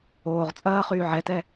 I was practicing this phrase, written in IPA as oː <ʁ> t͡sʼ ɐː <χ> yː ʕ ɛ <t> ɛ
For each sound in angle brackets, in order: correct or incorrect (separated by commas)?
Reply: correct, correct, correct